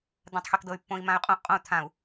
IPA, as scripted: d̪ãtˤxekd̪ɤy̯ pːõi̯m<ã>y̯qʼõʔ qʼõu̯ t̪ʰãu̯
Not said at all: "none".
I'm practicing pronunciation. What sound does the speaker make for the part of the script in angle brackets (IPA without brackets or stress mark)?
ã